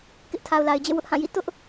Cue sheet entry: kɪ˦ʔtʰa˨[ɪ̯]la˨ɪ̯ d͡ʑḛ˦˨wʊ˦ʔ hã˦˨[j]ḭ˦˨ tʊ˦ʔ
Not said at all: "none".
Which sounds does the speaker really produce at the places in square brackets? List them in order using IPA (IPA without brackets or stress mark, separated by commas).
ʊ̯, j